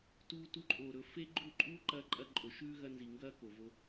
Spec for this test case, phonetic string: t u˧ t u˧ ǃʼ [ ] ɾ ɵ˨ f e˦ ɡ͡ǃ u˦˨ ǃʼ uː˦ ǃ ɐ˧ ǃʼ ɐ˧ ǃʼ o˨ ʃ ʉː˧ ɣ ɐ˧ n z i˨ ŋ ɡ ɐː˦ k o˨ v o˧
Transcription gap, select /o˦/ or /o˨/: o˨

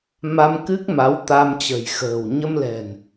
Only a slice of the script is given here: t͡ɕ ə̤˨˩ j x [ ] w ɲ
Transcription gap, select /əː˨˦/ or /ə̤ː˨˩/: ə̤ː˨˩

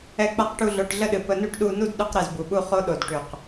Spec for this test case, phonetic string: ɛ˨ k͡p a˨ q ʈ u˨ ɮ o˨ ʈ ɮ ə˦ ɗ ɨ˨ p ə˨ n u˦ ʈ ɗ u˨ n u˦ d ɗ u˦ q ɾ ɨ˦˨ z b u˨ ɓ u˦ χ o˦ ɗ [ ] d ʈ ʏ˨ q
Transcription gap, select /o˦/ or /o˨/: o˨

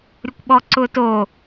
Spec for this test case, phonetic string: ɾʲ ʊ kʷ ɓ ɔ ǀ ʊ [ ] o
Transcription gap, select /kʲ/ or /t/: t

